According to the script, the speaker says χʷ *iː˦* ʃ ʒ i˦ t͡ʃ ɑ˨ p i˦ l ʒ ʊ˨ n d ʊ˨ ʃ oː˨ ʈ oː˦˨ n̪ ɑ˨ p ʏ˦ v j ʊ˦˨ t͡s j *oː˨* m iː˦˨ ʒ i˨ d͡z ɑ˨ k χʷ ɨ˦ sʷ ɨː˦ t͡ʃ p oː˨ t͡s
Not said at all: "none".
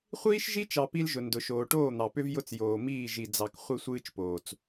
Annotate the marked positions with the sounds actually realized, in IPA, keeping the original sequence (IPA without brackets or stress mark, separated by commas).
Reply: iː˦, oː˨